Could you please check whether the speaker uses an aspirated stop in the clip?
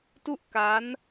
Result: no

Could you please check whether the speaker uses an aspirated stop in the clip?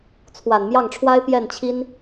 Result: yes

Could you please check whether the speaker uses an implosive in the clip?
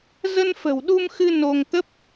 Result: yes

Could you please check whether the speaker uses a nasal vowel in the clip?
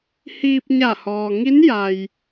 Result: no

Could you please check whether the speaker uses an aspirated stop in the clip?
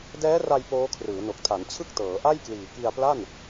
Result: yes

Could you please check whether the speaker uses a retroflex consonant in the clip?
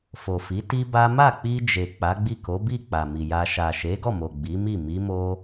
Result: no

